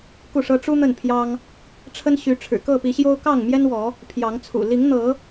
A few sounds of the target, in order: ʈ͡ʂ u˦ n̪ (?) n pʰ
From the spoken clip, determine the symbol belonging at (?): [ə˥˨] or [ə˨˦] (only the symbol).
ə˥˨